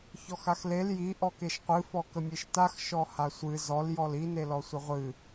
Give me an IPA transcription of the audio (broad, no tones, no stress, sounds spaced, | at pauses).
ç ɔ x a x l e l j i ʔ ɔ k e ʃ qʷ ɨ f ɔ k ə mʲ e ʃ t a x ʃ ɔ h a sʷ ɨ z ɔ l j ɔ l i n e l ɔ sʷ ə ʁʷ ɨ